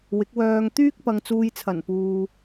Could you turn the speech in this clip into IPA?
wɪ˨˥k̚wœː˧ŋ t̪yː˥k̚pɐ˨ŋ t͡suː˨jt͡sʰɐ˨˩n puː˨

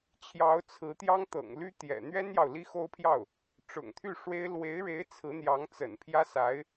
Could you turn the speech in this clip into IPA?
t͡ɕʰjɑ˧˥ʊ̯t͡sʰɹ̩˧˥t̪jɑ˥ŋ t̪ɤ̰˨˩ŋly˥t̪jɛ̰˨˩ n̪ɥɛ˥njɑ˨ʊ̯ li˥xo˥ʊ̯pʰjɑ˥˩ʊ̯ | ʈ͡ʂʊ̰˨˩ŋt̪ʰy˥˩ʂwe˥ɪ̯ lwe˧˥ɪ̯ɻe˧˥ɪ̯ t͡sʰɹ̩˧˥n̪jɑ˧˥ŋt͡sə̰˨˩n pʰjä˥sa˧˥ɪ̯

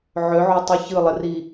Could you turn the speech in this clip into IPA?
ʕøʕotˤɯ çɯlˠəri

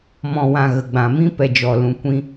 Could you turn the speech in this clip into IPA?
mɔ̃˨wã˨ ɣə˨ɡ͡bã˨mĩ˦ pɛ˨d͡ʒɔ˨lũ˨kʷĩ˧

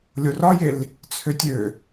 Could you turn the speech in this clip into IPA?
lʲorɒjel | t͡sʰøtʲø

